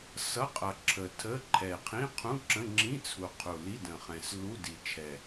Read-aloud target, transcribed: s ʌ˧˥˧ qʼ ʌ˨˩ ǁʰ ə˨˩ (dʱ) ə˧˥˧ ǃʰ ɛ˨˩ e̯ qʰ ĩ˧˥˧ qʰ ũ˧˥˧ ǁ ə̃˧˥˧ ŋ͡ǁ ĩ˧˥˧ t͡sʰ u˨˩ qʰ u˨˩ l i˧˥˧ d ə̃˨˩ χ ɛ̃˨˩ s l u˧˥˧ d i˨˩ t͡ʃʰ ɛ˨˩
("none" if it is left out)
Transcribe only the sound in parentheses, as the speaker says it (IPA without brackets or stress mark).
tʰ